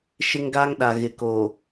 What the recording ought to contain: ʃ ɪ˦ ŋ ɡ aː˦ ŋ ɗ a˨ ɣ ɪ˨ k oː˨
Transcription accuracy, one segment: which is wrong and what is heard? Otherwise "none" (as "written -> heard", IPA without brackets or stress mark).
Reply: none